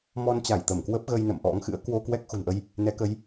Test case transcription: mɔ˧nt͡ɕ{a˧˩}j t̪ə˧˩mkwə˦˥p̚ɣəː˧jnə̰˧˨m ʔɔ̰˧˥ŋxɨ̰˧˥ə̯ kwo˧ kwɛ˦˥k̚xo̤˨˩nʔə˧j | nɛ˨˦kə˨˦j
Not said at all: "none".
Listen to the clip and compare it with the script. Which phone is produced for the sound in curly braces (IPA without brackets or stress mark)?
a˧˩